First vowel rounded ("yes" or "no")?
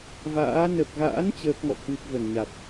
no